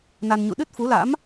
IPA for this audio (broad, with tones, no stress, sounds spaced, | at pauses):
n a˧ n ɲ ṵ˧˨ ɗ ɨ˦˥ t̚ f u˨˦ l a̰˧˥ m